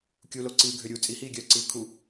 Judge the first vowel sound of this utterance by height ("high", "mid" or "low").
high